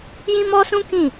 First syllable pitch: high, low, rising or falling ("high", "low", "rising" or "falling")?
high